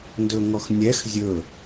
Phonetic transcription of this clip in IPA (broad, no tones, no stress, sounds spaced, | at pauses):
n d ɵ ŋ ɔ x nʲ ɛ x zʲ ɵ